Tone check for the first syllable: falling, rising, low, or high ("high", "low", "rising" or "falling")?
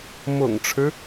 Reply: low